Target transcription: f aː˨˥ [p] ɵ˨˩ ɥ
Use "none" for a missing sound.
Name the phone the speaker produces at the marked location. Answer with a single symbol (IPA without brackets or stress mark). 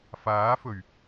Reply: f